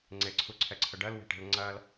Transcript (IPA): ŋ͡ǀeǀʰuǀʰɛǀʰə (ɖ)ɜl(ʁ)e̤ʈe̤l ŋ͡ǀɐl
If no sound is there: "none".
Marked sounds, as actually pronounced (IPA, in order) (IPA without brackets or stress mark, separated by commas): ɖ, w